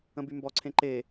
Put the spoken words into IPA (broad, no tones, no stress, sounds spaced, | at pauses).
ə̃ b y m b ɔ ǀʰ ẽ ǃ e